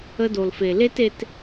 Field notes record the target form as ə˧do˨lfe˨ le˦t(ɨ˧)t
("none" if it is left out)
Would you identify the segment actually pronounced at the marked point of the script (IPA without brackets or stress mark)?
e˧